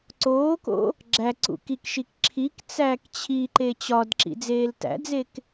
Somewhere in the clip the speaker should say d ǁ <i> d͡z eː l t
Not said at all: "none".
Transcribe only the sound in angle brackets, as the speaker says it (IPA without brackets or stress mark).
ḭ